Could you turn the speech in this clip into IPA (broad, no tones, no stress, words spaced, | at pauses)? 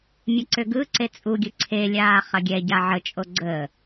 mʲɐǀʏɡɯǀe t͡sʼuɡʲɯ ǀʰelʲaː χɐɡʲɛɟa ʕət͡ʃʼo ɡ͡ǀə